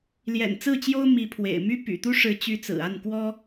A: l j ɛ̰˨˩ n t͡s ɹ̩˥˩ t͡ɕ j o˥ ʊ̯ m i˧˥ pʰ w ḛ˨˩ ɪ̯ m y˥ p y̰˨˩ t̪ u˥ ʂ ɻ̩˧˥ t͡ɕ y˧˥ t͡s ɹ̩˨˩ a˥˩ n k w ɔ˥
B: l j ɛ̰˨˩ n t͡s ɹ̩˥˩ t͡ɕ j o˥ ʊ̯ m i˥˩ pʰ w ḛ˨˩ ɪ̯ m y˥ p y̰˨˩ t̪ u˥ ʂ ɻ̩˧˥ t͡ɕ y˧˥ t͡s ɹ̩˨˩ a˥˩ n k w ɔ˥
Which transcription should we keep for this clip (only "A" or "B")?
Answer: A